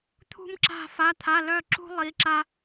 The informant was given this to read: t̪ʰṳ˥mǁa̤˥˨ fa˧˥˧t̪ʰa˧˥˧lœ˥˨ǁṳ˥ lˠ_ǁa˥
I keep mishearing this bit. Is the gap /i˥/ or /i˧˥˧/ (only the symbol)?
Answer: i˧˥˧